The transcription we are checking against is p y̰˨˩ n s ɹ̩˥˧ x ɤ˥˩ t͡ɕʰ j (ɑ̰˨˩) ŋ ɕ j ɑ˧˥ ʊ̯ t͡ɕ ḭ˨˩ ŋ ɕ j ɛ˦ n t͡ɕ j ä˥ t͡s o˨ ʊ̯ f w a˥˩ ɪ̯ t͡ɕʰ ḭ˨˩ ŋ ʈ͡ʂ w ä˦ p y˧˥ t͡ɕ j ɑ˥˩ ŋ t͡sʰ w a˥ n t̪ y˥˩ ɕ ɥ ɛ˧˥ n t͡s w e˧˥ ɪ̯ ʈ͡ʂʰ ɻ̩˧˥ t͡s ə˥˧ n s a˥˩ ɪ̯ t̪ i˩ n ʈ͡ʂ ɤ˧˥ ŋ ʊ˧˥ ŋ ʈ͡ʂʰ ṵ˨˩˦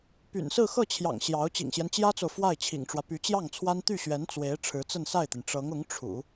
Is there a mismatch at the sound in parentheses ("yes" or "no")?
no